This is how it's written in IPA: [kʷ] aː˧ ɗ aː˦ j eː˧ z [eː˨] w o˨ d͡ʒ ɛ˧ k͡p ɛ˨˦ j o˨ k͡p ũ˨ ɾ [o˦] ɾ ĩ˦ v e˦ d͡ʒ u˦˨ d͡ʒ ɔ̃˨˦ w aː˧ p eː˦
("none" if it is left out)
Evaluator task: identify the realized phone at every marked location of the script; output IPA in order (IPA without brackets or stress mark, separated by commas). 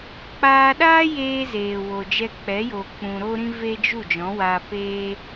k͡p, eː˨, o˦